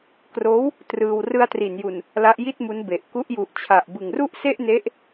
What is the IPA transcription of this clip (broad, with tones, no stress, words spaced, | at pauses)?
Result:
kroː˦˥w | trɯː˧w rɯ˧a̯tri˩˦nju˨˩n | la˦˥ʔji˥˩t̚mu˦˥n be˨˩ʔ ku˦˥ʔju˨˩ʔt͡ɕʰa˨˩ʔ bɯ˨˩ŋru˥˩ʔse˥˩ʔne˦˥ʔ